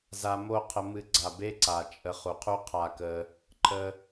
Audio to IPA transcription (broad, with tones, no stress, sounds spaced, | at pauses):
z a˧ m o˦˨ qʰ ə˧ m ɨ˧ ɡ͡ǀ a˨ b e˦ ǀ a˨ t͡ʃʼ ə˧ χ u˨ qʰ u˦ qʰ a˦ k ə˧ | ǃʰ ə˧